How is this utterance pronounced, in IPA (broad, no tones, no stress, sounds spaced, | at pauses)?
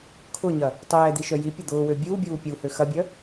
kʰ ʊ ɲ ɐ | tˤ ɛː d̪ i ʃ œ j i pʲ ɐ d̪ ʊː w ø bʲ uː bʲ uː pʲ u h ø x ɐ bʲ œ